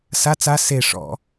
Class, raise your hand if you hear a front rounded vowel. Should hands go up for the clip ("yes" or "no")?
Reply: no